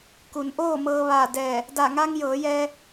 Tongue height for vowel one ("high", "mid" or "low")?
high